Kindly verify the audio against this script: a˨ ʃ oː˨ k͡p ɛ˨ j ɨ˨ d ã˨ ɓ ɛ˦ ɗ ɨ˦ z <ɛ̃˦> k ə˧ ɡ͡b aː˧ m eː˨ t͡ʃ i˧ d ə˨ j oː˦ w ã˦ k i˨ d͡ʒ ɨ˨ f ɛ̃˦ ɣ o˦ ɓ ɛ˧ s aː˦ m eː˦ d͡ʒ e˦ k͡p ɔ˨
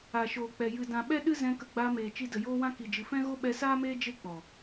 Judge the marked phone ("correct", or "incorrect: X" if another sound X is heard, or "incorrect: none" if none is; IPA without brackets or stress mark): incorrect: ɛ̃˧